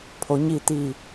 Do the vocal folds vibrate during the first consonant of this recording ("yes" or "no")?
no